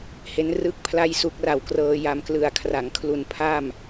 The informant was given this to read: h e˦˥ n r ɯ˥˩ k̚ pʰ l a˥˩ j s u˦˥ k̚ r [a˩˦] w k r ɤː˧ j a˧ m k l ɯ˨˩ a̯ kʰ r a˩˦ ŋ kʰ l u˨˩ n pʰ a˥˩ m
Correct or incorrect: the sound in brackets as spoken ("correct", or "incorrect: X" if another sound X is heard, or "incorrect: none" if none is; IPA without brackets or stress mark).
incorrect: a˨˩